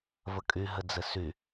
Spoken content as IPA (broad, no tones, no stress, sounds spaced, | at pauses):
v ə kʼ y ɦ ɘ d͡z ɘ s y